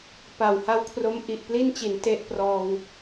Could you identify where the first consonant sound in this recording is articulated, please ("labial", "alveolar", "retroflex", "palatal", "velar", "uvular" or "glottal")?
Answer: labial